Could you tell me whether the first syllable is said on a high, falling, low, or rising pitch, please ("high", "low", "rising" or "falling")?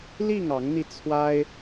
falling